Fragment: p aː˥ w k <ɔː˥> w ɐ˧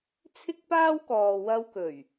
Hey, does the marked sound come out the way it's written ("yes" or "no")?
no